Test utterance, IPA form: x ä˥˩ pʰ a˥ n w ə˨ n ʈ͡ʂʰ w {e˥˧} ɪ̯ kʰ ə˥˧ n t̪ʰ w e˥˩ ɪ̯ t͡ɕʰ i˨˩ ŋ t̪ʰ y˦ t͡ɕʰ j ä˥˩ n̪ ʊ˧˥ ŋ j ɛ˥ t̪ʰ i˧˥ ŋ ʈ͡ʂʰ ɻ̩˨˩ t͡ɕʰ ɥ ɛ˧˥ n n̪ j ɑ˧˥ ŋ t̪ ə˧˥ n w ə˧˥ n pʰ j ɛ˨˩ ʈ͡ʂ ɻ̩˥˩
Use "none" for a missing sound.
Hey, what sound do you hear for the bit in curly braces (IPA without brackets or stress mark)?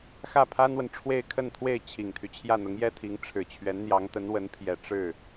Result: e˥˧